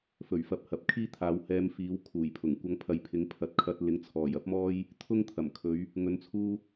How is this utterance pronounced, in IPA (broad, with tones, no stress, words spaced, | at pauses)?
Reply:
fɵ˨˩ɥfɐ˨p̚ hɐ˨p̚kʰiː˥ t̪ʰaː˨˧whɛː˧mfiː˨˥w kʰuː˨˩jpʰʊ˨˩ŋ kʷɐ˧ŋ pʰɐ˨jpʰɪ˨˥ŋpʰɐ˨˥t̚kʰɐ˧t̚ lɪ˨˥ŋt͡sʰɔː˨˩jɐ˥p̚mɔː˥j | t̪ʰʊ˥ŋt̪ʰɐ˨˩mkʰɵ˨˧ɥ | ŋɵ˧nt͡sʰuː˥